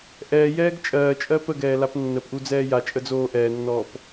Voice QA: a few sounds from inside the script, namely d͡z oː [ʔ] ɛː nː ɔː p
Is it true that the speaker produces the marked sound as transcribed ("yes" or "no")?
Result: yes